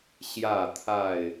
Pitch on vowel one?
falling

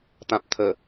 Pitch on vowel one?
low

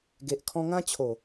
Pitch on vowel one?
low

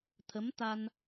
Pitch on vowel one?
rising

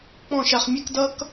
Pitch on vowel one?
falling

